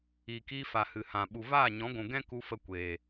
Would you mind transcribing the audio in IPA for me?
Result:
iː˨ k iː˧ f a˨ h ɨ˨ h ã˨ ɓ u˨ v aː˦˨ ɲ ɔ̃˨˦ ɡʷ ũ˨ ɡ ɛ̃˦ k u˧ f ə˧ kʷ eː˨

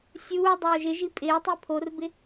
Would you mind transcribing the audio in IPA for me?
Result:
sʲ uː dˤ oː ʒ ɪ ʒ i pʼ ɪː tˤ i pʰ o r b ɪ

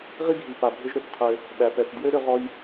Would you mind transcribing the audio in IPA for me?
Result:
ʁ i˥ ɡʱ i˩ p a˩ bʱ ʏ˧ ʒ ɾ ʏ˩ θ qʰ ø˩ | ɓ æ˩ p ɛ˩ θ d j ø˥ ɾ ʏ˧ ʁ ɔ˧ j

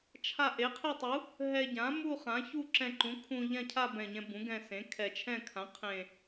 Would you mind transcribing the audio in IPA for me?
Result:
t͡ʃʰ a˥˧ ʔ e˩˥ qʰ e˥˧ tˤ u˩˥ | ɦ ɛ˧ ɟ ã˩˥ m u˥˧ χ ã˩˥ ç u˥˧ ǁ ɛ̃˧ ǃ ũ˩˥ kʰ ũ˧ ʎ ã˥˧ cʰ a˥˧ b ɛ̃˨˩ ɲ ɛ̃˧ b ũ˩˥ ɡ ɛ̃˧ s ẽ˩˥ kʰ ɛ˨˩ t͡ʃʰ ɛ̃˥˧ kʰ ã˩˥ qʰ ẽ˨˩

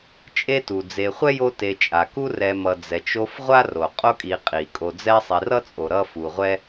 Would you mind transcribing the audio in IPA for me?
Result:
t͡ʃʼ e˦ t u˩ d͡z e˨ χʷ ɛ˥ j o˦ t e˨ t͡ʃʼ a˩ k u˦ r ɛ˨ m ʌ˨ d͡z ɛ˩ t͡ʃ o˦ f ʁʷ a˥ r o˩ qʼ o˦ kʼ i˨ qʼ i˩ kʼ o˨ d͡z ɛ˦ sˤ i˨ r ʌ˥ t͡sʼ o˨ ɾ ʌ˥ f u˨ ʁʷ ɛ˥

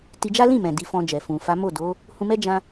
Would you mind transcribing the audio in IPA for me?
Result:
t i˧ d͡ʒ a˦ l ĩ˦˨ m ɛ̃˨ d i˧ f ɔ̃˧ d͡ʒ ɛ˨ f ũ˨ f a˨˦ m o˦˨ d o˨˦ | h ũ˧ m ɛ˦ d͡ʒ ã˧

